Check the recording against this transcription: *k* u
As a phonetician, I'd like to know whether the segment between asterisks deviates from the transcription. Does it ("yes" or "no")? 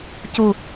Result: yes